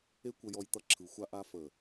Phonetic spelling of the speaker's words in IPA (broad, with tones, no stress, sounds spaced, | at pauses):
e˦ kʷ ə˧ j ɔ˧ j t̪ ʌ˧ ǁʰ ɯ˨ xʷ a˧ ʔ a˧ f ə˨